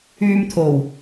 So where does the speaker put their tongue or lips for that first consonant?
lips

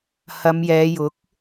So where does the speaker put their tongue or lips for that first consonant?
throat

